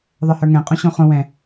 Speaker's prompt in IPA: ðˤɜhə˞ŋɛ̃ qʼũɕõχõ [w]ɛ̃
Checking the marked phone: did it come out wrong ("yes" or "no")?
no